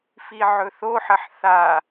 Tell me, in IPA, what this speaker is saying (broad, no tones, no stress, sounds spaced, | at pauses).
f i ʕ ɵ θ o ħ ɐ ħ θ a